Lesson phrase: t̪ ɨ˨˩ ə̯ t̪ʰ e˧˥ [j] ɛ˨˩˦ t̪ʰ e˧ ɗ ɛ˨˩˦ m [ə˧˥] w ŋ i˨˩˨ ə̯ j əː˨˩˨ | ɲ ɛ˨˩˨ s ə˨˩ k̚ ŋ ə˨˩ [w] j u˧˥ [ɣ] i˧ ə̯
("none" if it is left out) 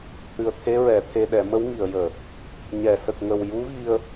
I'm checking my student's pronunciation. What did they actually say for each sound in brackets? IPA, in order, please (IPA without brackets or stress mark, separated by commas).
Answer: ɹ, ə˧˥, w, ɣ